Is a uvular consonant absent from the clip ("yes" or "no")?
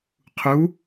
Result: no